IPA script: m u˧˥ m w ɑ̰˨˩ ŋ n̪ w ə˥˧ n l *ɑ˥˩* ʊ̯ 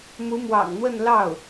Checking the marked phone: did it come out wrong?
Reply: no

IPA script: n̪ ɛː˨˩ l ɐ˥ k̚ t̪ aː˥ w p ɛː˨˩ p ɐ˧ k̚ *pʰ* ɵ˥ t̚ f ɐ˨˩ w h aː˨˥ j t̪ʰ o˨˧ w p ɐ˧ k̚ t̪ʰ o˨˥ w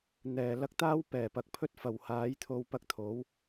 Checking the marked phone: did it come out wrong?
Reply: no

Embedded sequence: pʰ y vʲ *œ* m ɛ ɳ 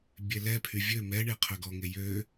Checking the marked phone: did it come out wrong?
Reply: yes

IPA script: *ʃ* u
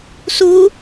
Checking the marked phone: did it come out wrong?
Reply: yes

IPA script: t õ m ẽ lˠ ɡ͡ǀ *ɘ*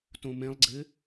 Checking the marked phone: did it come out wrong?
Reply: no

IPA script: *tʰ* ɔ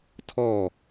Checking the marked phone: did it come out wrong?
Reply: no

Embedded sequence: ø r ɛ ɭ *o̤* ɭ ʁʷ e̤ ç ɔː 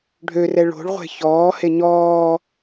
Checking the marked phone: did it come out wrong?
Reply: no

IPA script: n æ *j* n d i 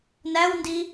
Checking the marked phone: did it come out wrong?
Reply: yes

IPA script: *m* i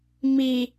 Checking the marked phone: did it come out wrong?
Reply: no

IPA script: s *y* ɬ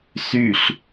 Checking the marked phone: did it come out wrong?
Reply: no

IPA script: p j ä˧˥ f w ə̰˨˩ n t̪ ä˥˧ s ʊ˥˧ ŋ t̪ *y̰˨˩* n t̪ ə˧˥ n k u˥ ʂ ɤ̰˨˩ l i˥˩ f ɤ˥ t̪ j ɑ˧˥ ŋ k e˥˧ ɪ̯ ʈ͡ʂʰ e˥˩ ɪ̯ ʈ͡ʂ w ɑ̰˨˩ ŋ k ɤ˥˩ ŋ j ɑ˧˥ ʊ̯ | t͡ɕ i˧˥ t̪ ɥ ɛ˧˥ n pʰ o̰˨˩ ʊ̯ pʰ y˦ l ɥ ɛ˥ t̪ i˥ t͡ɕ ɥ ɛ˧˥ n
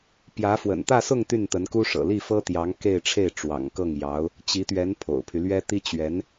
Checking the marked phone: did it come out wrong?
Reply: yes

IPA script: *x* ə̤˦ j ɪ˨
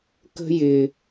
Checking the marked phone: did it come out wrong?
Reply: yes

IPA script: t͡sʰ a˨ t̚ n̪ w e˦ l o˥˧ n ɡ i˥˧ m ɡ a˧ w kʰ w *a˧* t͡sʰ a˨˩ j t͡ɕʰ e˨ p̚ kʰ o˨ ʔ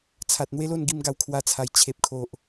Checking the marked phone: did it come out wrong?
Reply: no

